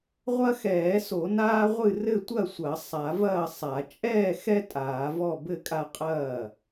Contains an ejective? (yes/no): yes